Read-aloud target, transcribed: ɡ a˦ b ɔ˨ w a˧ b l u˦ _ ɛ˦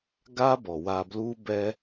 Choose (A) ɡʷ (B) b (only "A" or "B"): B